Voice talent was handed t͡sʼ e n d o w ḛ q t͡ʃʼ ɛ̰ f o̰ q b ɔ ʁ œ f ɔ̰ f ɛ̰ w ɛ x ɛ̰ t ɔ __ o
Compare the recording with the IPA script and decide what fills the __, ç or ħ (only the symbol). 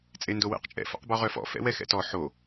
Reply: ħ